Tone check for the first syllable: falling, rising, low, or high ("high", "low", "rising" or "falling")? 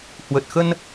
low